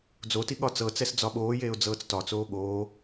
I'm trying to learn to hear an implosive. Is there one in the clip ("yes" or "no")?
yes